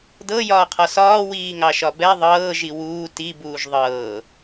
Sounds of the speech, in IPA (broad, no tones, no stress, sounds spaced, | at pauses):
d ɤ j ɒː qʰ ɒ s ɒː w iː ŋ ɑ ʃ ɒ b ɛ ðˤ ɤː ʒ i w uː t i b uː ʒ ðˤ ɤː